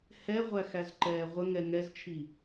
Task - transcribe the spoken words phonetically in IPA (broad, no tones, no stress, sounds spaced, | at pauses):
h ɛ ʁʷ æ x æ z ǃ ɛː ʁʷ ə ŋ ɛ ŋ ɛ z t͡ʃʰ i